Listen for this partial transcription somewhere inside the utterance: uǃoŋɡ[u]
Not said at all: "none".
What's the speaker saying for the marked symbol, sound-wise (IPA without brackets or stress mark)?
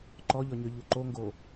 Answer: o